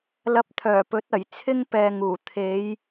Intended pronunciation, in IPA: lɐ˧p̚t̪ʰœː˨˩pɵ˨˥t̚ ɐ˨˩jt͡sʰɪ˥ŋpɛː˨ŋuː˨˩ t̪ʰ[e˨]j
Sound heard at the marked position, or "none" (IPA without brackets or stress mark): e˨˧